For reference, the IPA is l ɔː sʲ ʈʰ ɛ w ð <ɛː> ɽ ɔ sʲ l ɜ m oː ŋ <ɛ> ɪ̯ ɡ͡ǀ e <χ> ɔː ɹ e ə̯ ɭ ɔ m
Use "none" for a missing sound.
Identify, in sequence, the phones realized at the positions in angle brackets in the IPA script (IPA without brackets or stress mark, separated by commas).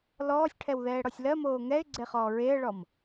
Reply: ɛː, ɛ, χ